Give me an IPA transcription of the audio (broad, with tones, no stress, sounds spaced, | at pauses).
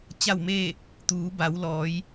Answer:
t͡ɕ a˥˨ w m eː˥˨ | t̪ uː˩˧ b a˩˧ w l ɔː˩˧ j